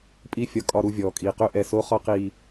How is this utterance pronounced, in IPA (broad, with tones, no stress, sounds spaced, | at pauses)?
pʼ i˨˦ fʲ ɒ˨ kʼ ɒ˨ ɾ u˨ vʲ ɔː˨ kʼ iː˨ q ø˦ ʔ ɛ˨ s o˨˦ χ ɒ˦ q iː˨